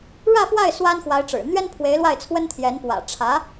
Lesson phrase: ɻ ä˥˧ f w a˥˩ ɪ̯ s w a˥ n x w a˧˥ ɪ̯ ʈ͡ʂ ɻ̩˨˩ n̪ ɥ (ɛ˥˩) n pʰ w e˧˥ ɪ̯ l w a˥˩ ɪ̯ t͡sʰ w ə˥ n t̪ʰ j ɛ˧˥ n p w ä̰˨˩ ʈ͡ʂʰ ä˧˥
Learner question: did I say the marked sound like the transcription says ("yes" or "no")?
no